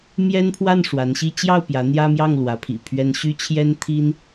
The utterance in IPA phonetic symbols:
mjɛ˥npʰwa˥˩n ʂwa˧˥nɕi˥ t͡ɕjɑ˥˩ʊ̯ pjä˧˥n̪jä˥mjɑ˥˩ŋ lwä˧˥pʰḭ˨˩pʰɥɛ˥n ɕy˥t͡ɕʰjɛ˥nt̪ʰi˥n

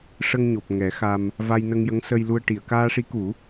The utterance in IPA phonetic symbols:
ʂə˧ŋɲo˨˩p̚ ŋɛ˨˩˦ xa˧m | va˧jnə˧ŋjə˧˥ŋ sə˧jlu˧ə̯ʈi˨˩˨ə̯ kaː˧ʂi˧˥ku˨˩˦

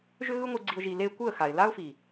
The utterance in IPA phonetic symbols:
ʒʏ˦ɣɯ˦ŋʷɯ˧ɡ͡ǀi˧ʊ̯ ʒi˧le˦ kʷɯ˦˨ə̯xa˨ɪ̯la˦ʊ̯fi˨

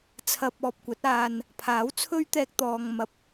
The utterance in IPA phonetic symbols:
t͡sʰɐ˧p̚ɔː˨p̚kʷɐ˨˥t̚ aː˨n | pʰaː˨˥wt͡sʰɵ˥ɥt̪ɛː˧k̚ t̪ɔː˨ŋmɐ˨p̚

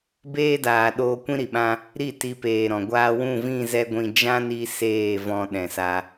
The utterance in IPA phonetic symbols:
beː˦daː˨ ɗoː˧ kʷĩ˦ɾi˨ɓã˦ | ɾi˦˨ ti˧peː˨ɾɔ̃˨ ɡʷaː˧wũ˦˨vĩ˦˨ zɛ˦ɡʷĩ˧ d͡ʒã˦ni˧ seː˦˨ vɔ̃˧ɗɛ̃˨sa˧

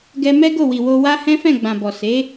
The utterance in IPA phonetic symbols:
ɡɛ˧mɛ˦ ɡo˦˨wi˨wo˧wa˦ hɛ̃˦fɛ̃˦˨ɡ͡bã˨bɔ˨ se˨˦

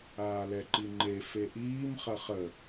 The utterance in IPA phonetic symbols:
aːlɛǃiŋ͡ǃe feʔiːm χɐχə

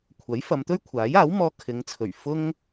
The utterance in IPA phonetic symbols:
kʷʰɐ˨˥jfɐ˨˧mt̪ɵ˥ɥ kʷʰaː˨˥jaː˨˥wmɔː˧ kʰɪ˨˧ŋt͡sʰɵ˨˩ɥ fʊ˥ŋ

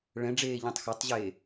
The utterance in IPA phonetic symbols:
ɭɛ̃ ɖ͡ʐeːʎɛ̃tˤxatˤʑeː

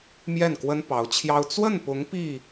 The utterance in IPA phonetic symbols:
mjɛ˥˩nkwə˥n pɑ˧˥ʊ̯t͡ɕʰjɑ˥ʊ̯ t͡swə˥˩npʊ˧˥ŋ pi˥˩

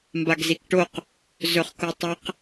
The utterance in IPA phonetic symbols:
mbaɡzikʈoq | zɵχkotˤaq

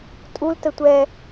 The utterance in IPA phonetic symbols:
tʼul tətʷɛ

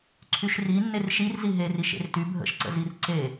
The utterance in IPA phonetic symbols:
ǀʰyʃri nːerʃir ziɦeri ʃḛrty bʱə̰ʃǀə̰zir ǀe

